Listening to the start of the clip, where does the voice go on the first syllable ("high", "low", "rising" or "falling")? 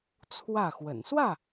falling